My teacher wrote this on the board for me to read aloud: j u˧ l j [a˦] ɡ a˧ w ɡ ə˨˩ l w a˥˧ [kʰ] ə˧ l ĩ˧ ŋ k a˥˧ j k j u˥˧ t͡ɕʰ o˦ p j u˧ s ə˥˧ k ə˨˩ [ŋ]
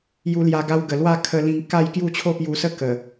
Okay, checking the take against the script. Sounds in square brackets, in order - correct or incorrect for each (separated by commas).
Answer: incorrect, correct, incorrect